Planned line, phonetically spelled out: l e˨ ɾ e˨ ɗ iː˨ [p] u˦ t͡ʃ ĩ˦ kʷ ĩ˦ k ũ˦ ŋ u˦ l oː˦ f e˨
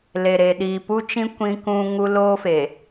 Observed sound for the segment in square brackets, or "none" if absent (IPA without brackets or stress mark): p